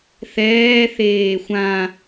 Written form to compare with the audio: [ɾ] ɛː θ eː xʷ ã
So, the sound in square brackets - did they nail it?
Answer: no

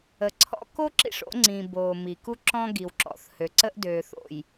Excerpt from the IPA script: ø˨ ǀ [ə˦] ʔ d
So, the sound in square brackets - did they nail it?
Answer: yes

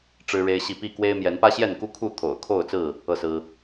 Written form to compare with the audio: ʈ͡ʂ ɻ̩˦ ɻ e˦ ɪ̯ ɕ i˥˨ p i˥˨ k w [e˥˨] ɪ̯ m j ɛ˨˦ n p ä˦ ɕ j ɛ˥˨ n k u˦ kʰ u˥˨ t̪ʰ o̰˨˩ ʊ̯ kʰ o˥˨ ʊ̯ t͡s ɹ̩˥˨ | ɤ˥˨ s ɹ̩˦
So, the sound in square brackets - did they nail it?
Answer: no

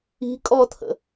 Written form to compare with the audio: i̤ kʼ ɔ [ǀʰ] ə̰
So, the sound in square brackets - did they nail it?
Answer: no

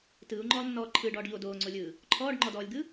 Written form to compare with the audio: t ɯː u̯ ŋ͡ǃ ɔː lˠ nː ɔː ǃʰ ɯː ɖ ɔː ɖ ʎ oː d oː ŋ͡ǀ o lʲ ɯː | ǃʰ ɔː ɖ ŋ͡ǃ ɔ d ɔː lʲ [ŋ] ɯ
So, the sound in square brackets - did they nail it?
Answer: no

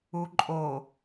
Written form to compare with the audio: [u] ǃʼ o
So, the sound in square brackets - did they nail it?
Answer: yes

